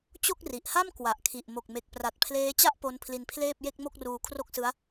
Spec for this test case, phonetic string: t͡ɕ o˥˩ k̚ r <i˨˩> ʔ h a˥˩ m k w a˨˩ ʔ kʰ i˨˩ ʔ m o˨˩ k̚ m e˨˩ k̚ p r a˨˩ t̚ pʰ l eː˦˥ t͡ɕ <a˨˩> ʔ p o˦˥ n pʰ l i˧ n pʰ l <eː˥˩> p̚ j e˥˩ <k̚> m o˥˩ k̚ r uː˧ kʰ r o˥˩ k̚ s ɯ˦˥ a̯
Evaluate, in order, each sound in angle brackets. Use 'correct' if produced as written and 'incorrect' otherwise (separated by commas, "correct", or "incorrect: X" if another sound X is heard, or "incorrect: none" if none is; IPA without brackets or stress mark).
correct, incorrect: a˥˩, correct, correct